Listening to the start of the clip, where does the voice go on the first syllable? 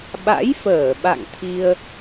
rising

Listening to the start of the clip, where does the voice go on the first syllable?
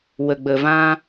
low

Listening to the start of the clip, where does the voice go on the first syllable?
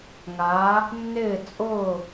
rising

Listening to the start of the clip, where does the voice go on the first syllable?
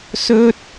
high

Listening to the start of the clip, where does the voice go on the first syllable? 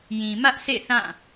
low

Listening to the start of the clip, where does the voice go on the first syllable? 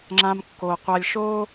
high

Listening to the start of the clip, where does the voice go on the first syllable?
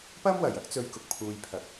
high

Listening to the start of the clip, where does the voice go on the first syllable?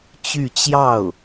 falling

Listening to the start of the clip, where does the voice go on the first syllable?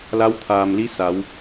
rising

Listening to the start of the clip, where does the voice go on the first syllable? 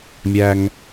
low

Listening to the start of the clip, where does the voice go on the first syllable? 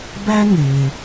high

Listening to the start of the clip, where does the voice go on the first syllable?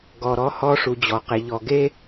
low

